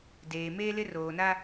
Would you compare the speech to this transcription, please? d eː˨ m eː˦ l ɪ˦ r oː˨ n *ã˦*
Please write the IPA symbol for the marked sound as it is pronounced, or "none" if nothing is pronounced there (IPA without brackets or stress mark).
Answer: a˦